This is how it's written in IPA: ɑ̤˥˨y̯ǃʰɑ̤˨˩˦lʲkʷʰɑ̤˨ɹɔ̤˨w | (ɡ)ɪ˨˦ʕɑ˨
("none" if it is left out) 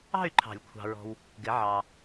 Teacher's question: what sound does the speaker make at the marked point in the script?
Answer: ɡ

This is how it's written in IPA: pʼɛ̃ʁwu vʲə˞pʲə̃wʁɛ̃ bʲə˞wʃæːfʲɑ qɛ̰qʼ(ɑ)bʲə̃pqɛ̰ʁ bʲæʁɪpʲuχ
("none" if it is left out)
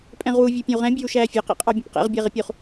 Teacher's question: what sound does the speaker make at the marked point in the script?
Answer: ɑ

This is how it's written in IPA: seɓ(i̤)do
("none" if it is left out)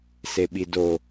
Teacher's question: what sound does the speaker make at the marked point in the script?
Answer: i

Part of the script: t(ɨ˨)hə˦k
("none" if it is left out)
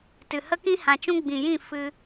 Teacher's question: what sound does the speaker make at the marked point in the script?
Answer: ɨ˨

